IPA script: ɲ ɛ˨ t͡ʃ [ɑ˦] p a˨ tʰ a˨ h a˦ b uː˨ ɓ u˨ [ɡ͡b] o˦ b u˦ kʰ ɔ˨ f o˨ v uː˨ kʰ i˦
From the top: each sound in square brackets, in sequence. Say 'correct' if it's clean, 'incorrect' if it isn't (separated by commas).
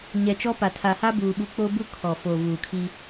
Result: incorrect, incorrect